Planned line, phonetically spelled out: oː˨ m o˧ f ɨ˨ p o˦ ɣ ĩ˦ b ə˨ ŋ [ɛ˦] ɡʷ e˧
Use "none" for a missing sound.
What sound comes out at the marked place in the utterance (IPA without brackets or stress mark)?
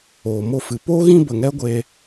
ɛ˦